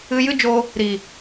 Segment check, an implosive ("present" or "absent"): absent